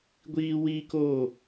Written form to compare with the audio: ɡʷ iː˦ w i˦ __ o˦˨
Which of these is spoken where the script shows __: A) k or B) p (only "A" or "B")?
A